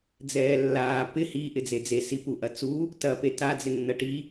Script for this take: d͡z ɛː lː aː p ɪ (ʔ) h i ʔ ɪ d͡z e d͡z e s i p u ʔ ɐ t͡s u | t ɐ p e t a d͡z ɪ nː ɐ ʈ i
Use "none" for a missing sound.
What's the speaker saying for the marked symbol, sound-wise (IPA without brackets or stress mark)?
none